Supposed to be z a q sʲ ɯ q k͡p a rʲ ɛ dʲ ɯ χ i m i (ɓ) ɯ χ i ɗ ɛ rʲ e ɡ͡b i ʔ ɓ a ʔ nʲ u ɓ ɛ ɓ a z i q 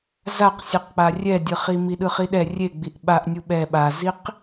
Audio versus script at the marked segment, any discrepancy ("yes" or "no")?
yes